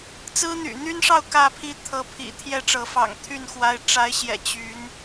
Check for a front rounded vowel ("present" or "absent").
present